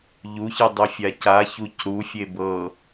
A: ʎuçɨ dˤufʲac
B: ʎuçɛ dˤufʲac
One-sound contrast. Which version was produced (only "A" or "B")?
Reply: A